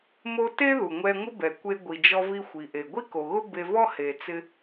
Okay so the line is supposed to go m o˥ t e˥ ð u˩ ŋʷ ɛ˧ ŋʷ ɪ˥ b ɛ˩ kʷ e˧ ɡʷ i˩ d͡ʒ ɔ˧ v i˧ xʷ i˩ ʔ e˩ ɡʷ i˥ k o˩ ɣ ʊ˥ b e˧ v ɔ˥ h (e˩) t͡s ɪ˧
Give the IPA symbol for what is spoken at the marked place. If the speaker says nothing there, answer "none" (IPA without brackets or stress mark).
e˩